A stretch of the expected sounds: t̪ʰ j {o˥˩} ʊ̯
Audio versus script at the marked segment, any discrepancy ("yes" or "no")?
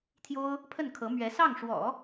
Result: yes